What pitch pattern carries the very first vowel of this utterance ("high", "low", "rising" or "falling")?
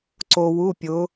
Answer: low